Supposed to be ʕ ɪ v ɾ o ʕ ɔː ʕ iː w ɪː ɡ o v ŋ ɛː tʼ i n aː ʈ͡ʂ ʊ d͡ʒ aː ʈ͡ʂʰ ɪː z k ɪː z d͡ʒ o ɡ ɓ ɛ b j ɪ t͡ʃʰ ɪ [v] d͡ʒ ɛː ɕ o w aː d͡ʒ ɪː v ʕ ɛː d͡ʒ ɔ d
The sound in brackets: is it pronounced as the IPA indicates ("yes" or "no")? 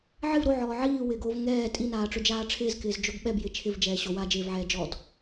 yes